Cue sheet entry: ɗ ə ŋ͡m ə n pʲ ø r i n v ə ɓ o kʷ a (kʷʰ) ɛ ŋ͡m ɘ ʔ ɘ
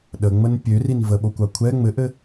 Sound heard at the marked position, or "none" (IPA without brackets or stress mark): kʷʰ